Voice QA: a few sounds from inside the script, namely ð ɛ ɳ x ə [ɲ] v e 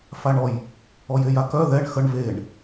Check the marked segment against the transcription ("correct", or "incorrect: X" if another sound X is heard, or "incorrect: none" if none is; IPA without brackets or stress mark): incorrect: ɳ